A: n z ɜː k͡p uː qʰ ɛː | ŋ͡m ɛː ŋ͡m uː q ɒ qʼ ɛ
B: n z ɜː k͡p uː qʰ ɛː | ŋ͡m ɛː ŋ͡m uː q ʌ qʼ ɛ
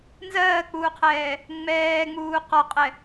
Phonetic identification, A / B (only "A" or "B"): A